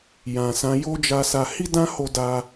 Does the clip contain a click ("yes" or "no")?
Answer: no